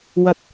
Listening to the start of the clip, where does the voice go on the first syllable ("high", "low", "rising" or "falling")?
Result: low